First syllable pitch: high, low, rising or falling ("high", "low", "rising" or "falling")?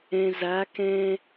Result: low